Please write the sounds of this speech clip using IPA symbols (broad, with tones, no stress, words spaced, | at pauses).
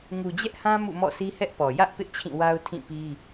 ŋu˨d͡ʑɛ˦ʔhã˦ mṵ˦˨mɔ̰˦˨ sʰi˦hɛ˦ʔpɔ˨ jä˦ʔ pɪ˦ʔt͡ɕʰĩ˦˨wa˦ʊ̯ tʰĩ˦˨pi˦